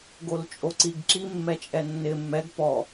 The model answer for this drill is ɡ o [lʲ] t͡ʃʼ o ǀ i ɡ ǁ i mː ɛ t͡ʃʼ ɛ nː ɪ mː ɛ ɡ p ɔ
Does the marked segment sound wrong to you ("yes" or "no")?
yes